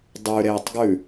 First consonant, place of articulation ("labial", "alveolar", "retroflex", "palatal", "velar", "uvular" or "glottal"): alveolar